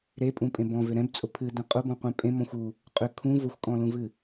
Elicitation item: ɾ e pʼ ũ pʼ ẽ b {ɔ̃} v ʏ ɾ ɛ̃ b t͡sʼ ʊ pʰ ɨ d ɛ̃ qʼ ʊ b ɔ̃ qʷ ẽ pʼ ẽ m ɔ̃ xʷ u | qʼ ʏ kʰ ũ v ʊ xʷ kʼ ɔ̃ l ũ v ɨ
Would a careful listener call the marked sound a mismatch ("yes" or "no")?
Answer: no